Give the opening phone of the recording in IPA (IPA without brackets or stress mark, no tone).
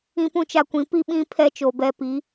ĩ